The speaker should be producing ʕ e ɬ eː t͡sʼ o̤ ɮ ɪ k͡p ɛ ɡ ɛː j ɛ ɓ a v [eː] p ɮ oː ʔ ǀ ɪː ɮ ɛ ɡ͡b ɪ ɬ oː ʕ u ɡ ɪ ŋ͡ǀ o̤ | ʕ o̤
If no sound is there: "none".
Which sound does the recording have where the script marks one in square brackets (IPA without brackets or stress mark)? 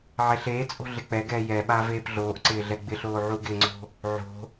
eː